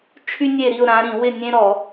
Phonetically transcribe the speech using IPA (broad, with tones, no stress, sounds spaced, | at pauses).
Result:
t͡ʃʰ y˦ nʲ e˦˨ ɾ i˦˨ ʊ̯ ɾ ã˨˦ ɾ ĩ˧˩˧ w ɪ˦˨ nʲ ẽ˦ ɾ ɔ˧˩˧